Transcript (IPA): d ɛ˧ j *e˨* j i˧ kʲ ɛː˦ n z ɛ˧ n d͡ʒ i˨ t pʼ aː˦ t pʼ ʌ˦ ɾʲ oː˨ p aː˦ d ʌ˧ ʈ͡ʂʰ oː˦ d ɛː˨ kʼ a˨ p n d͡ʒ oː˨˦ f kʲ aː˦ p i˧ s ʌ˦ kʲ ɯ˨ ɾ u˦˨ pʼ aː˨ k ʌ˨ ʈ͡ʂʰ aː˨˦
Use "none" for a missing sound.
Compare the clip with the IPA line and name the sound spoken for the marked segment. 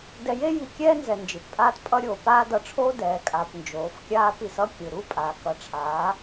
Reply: e˦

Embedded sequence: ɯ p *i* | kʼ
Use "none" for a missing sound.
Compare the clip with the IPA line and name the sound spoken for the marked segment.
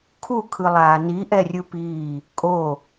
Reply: iː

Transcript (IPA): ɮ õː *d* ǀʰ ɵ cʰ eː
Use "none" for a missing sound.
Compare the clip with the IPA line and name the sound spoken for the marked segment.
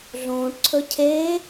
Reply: ʈ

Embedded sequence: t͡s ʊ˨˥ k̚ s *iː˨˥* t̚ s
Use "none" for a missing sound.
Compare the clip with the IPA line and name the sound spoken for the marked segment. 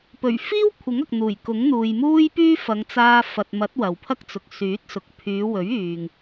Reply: yː˨˥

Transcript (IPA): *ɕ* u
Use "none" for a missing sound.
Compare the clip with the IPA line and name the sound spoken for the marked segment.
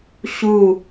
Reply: ɕ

